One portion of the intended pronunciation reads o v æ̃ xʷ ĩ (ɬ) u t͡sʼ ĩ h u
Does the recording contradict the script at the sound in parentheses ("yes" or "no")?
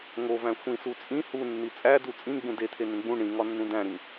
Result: yes